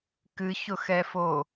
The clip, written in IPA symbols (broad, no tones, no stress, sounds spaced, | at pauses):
k ɨ ç ʊ x ɛ f o